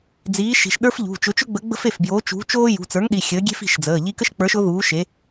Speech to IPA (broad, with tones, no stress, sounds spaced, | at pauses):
d͡z iː˨˥ ʃ i̤˩˧˩ ʃ ɗ ə˞˥ f ʎ ṳ˩˧˩ t͡ʃ ʊ˨˥ t͡ʃ ʊ˥ ɡ͡b ə˨˥ ɡ͡b ə̤˥ f e˩˧˩ f b j oː˨˥ t͡ʃ ṳ˨˥ t͡ʃ oː˥ j ṳ˩˧˩ t͡s ə˞˨˥ ŋ ɗ i˩˧˩ xʲ əː˨˥ ɡʲ e̤˥ f i̤˩˧˩ ʃ d͡z əː˩˧˩ ʎ i˥ k ə˥ ʃ k͡p ə˞˨˥ ʃ ʊ˨˥ ð uː˨˥ ʃ e˨˥